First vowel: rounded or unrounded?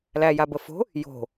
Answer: unrounded